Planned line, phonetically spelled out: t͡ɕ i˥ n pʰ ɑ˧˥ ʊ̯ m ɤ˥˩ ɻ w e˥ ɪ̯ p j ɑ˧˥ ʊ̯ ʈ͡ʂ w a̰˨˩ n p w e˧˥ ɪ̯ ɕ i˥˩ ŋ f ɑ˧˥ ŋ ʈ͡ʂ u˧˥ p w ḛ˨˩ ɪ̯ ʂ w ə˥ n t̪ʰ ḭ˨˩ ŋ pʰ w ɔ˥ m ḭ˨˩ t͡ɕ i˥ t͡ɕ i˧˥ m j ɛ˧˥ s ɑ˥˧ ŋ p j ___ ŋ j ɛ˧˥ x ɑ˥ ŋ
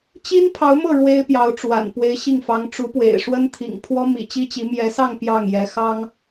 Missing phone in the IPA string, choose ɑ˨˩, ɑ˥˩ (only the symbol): ɑ˥˩